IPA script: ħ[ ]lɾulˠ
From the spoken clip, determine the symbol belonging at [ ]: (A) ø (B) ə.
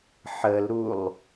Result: B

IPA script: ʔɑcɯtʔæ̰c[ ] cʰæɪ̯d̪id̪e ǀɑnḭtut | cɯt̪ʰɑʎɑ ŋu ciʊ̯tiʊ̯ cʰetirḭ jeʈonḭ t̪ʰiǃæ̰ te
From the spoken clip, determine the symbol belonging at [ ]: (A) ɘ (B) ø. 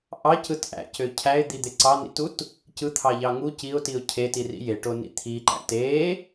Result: B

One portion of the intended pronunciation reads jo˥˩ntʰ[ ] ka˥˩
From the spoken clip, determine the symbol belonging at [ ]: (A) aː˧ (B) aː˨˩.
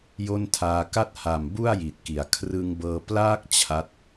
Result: A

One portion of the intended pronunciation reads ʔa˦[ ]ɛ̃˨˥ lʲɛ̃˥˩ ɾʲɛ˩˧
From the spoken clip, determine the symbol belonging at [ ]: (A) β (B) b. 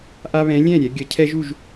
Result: A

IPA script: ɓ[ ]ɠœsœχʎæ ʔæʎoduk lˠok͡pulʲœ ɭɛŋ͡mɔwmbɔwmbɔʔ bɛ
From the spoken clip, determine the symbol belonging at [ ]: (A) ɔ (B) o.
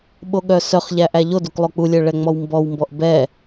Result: B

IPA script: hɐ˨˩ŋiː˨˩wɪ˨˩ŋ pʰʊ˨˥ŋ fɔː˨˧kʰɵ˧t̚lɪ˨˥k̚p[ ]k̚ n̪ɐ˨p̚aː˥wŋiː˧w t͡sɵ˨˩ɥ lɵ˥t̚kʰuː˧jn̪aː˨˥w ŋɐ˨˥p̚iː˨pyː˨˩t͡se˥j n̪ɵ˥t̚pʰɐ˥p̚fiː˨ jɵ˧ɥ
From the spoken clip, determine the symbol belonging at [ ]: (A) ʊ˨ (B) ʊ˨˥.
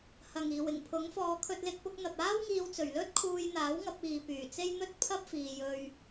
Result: B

